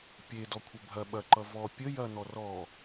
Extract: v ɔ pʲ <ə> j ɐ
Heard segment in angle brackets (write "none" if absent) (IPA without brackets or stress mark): ə